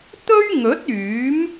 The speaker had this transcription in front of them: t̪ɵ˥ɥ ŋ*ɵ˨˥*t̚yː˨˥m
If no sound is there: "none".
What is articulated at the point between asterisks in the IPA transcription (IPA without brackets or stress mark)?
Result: ɵ˨˥